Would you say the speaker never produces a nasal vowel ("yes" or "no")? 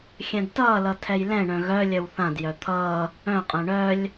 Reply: no